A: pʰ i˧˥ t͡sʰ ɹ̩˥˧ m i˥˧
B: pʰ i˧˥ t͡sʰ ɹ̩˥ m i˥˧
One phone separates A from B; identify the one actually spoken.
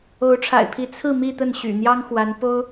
A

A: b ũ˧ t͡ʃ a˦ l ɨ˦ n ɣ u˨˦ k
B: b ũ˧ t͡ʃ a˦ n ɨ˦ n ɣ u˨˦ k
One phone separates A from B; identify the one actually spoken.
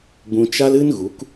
A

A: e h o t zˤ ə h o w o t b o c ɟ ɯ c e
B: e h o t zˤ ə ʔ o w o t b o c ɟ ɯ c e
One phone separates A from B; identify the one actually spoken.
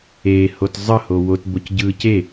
A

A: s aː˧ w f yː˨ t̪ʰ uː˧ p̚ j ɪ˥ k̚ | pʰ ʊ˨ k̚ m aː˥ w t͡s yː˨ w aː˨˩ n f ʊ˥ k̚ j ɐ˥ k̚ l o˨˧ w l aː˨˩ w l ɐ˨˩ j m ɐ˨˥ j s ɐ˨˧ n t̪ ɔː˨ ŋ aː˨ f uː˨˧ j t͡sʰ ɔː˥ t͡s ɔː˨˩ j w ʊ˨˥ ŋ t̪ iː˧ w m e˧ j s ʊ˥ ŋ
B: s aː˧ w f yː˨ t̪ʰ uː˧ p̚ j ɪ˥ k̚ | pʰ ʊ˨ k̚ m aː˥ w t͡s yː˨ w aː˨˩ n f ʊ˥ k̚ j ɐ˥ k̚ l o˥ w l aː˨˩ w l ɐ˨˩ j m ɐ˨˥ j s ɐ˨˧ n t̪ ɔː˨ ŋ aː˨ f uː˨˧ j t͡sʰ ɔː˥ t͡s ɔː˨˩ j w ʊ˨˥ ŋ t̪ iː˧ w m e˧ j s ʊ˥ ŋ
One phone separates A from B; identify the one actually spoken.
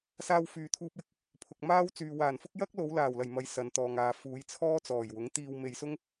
A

